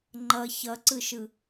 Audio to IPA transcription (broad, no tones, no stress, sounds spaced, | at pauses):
ŋ͡ǃ ʌ ç ʌ ǀ ɯ ʃ ɯ